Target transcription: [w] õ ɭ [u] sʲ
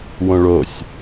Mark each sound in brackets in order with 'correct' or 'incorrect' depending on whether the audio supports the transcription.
correct, incorrect

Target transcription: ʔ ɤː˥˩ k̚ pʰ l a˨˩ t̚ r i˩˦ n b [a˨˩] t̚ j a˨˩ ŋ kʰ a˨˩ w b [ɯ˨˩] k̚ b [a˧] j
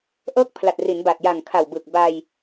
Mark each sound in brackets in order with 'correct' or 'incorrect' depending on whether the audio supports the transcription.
correct, correct, correct

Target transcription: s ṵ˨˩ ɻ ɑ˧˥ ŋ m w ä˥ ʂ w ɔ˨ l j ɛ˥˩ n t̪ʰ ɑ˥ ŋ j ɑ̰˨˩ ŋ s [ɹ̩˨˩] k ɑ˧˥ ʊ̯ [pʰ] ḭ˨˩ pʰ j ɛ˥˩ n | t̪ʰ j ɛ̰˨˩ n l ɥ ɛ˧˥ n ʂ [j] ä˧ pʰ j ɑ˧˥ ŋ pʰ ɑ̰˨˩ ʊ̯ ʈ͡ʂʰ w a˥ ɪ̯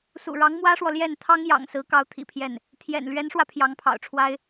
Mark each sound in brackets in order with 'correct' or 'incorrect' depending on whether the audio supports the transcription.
incorrect, incorrect, incorrect

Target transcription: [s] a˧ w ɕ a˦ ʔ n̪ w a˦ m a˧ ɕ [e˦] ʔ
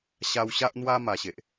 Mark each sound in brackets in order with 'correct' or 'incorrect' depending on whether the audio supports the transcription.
incorrect, incorrect

